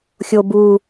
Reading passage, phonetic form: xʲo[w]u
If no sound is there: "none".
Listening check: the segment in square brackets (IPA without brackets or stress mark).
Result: b